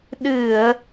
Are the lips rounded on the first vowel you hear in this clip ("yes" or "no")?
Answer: no